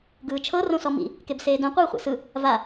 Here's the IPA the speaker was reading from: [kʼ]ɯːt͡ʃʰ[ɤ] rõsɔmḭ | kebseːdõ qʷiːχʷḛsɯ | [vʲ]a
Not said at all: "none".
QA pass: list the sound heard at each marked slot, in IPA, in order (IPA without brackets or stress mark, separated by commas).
ɡ, ɤ, v